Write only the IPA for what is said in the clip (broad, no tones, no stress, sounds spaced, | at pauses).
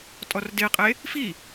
tʼ ɔ r d e qʼ e | f i